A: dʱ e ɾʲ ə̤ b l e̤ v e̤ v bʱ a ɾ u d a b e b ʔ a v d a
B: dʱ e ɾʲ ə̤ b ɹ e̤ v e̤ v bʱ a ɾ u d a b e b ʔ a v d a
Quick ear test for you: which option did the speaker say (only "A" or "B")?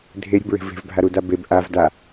B